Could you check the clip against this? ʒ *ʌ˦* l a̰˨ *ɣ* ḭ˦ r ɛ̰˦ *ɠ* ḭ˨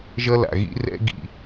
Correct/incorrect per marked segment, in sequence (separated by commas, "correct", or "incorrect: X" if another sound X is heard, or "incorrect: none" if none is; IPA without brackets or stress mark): correct, correct, incorrect: ɡ